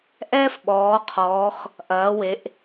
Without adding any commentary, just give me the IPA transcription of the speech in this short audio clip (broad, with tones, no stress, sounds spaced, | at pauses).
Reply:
ʔ ɛː˥ f ɓ ɔː˩˧ qʰ ɔː˩˧ x | ʔ ɐː˩˧ w e˩˧ ʔ